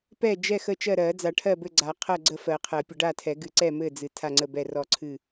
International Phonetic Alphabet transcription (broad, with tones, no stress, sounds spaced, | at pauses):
p ɛ˥˨ d͡ʒ ɛ˥˨ x ə˥˨ t͡ʃ ɜ˥˨ ɾ ɜ˨˩˦ d͡z a˨˩˦ ʈʰ ɜ˥˨ b ɘ˥˨ ɡ͡ǀ a˨˩˦ qʰ ɜ˥˨ ɡ͡ǀ ə˥˨ f ɜ˨˩˦ qʰ ɜ˨˩˦ pʲ ə˨˩˦ ɖ a˥˨ tʰ ɛ˨˩˦ ɡ ɨ˨˩˦ ǀ ɛ˥˨ m ɘ˥˨ d͡z ɨ˨˩˦ tʰ a˥˨ ŋ͡ǀ ə˥˨ b ɛ˥˨ r ɔ˥˨ ǀʰ ɨ˥˨